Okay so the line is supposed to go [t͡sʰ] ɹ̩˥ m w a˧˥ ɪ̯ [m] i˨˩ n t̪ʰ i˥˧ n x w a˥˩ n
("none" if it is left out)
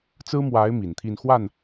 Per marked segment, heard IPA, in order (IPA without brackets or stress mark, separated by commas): t͡s, m